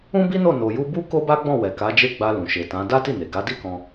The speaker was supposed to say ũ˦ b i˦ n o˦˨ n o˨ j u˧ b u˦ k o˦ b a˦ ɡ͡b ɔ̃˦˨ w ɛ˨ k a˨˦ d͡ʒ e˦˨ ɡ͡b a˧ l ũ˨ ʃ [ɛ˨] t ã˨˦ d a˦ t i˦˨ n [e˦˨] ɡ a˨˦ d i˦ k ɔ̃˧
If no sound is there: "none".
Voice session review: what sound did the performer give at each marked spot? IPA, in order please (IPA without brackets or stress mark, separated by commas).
e˨, e˨